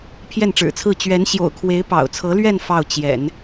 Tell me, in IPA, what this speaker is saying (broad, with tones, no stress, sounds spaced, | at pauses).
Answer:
pʰ j ɛ˥˩ n ʈ͡ʂ ɻ̩˨˩ t͡sʰ ɹ̩˥˩ t͡ɕ ɥ ɛ˧˥ n ɕ j o̰˨˩ ʊ̯ kʰ w e˧˥ ɪ̯ p ɑ̰˨˩ ʊ̯ t͡sʰ ɤ˧˥ l ɥ ɛ˥˧ n f ɑ˥˩ ʊ̯ t͡ɕ j ɛ̰˨˩˦ n